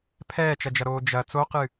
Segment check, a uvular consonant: present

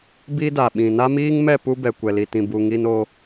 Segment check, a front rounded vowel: absent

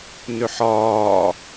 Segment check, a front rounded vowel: present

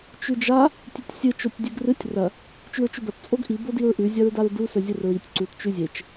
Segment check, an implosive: absent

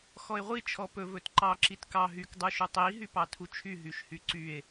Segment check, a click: present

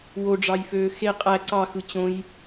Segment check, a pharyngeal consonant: absent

